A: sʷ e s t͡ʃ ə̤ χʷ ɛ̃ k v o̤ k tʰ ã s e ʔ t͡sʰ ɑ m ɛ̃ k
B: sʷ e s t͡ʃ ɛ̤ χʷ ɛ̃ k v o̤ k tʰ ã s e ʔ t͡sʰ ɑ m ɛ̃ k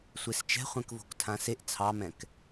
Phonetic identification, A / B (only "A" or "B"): B